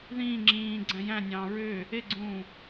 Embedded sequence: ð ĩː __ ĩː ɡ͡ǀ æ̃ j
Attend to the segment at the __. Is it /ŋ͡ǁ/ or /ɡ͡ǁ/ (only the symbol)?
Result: ŋ͡ǁ